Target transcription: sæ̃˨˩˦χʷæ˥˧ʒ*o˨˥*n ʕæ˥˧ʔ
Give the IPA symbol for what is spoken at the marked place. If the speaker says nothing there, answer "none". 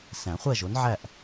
o˨˥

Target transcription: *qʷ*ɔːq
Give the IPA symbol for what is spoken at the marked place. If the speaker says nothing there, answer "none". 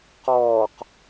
q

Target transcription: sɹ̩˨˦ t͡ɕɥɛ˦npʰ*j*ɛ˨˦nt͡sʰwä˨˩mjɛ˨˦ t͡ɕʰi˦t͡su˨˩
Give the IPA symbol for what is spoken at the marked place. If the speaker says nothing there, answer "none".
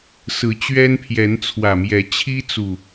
j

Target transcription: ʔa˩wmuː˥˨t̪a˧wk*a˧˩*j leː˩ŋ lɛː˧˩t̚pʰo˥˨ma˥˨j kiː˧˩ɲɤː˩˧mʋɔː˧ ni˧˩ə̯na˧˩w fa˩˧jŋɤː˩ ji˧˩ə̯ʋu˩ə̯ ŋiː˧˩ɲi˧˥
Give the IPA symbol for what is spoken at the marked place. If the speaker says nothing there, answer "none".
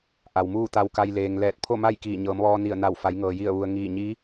a˧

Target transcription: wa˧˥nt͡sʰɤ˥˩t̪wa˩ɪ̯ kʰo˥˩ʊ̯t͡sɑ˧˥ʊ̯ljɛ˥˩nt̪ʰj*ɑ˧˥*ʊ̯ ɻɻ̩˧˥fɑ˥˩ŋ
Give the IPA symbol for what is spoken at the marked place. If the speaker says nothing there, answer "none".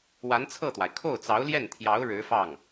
ɑ˧˥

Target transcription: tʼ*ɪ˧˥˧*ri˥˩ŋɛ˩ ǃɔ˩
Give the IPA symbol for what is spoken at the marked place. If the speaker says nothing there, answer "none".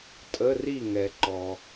ə˧˥˧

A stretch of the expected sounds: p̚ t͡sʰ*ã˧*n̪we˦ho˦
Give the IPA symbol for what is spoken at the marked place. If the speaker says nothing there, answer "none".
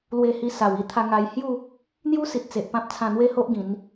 ã˧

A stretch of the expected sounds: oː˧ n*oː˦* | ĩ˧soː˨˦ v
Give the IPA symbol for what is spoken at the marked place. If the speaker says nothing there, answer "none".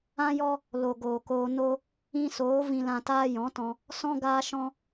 o˦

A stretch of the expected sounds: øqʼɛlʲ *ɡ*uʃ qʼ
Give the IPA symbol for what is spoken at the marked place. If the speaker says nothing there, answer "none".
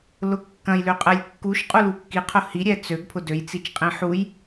kː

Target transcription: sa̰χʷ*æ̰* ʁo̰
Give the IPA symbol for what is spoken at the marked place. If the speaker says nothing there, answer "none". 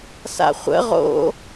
ə̰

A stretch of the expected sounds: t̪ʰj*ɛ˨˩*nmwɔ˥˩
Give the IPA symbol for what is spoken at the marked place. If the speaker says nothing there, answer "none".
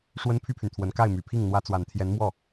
ɛ˧˥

